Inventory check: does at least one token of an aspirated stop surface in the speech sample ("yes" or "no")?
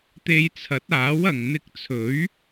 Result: yes